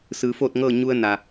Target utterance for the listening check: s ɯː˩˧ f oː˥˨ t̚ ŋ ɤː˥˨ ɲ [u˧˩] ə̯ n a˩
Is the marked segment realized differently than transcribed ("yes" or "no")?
yes